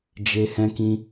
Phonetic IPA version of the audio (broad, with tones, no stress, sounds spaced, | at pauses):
d͡ʒ e˦ h ɛ̃˦ k ĩ˦